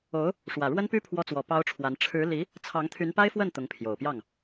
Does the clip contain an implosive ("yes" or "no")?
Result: no